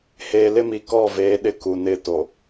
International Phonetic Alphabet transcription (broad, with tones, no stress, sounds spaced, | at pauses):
h eː˨ l ɪ˦ m i˨ k ɔ˦˨ v eː˨˦ ɗ ɪ˦ k u˨ n ɪ˦˨ t o˨